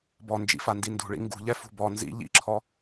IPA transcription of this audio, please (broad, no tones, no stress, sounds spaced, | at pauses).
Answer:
b ɔ n d͡ʒ ḭ f a n d i n d ṳ ɭ ḭ ŋ ɡ ṳ ʎ ɛ f ṳ b ɔ n z ḭ ʎ ḭ ǁʰ ɔ